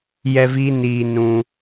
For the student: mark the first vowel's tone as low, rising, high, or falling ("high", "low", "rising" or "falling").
high